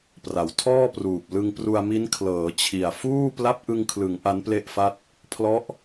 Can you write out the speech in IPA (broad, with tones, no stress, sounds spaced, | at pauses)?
p r a˩˦ w tʰ ɔː˥˩ p r uː˨˩ p̚ l ɯ˧ ŋ p r u˧ a̯ m i˦˥ n kʰ l ɤː˩˦ t͡ɕʰ i˨˩ a̯ f uː˥˩ p l a˦˥ p̚ ʔ ɯ˧ ŋ kʰ l ɯ˩˦ ŋ ʔ a˦˥ n p l e˥˩ ʔ f a˥˩ t̚ | pʰ l ɔ˦˥ ʔ